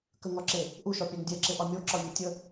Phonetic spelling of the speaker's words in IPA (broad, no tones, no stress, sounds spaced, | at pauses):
k ə ŋ ɒ ǁ e | ʔ u ʃ ɒ pʲ a ŋ dʲ ɛ ǁ e ʔ ɒ mʲ o ǁ ɒ vʲ o tʲ ə